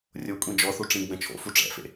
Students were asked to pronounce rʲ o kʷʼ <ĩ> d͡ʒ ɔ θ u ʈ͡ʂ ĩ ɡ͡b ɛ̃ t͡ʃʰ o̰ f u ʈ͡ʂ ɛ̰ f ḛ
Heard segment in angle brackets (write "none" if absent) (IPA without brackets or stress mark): ĩ